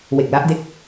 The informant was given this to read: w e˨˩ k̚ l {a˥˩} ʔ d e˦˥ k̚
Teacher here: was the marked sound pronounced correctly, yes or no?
no